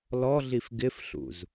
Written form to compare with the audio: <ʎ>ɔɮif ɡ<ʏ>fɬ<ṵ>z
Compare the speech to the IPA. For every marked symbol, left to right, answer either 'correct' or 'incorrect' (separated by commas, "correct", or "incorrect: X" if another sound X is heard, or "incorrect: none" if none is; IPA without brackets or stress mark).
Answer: incorrect: l, incorrect: ɪ, correct